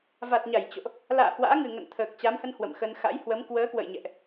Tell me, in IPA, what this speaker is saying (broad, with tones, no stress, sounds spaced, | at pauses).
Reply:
v a˨˩ t̚ ɲ a˧˩ j t͡ɕ o̰˧˨ ʔ | l a̰ː˧˨ h w a̰ː˧˥ ŋ ɨ˨˩ ŋ ə̰˧˨ n t̪ʰ əː˨˩ k̚ t͡ɕ a˨˦ m h ə˧ n h w ə̰˧˨ m x ə˧ n x a̰˧˥ j h w ə˨˦ m k w əː˨˦ k w ə̰˧˨ j ɲ ɛ̰˧˨ ʔ